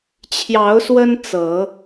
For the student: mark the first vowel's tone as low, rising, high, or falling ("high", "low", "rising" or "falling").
rising